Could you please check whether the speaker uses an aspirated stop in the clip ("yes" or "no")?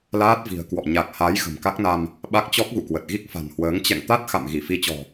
no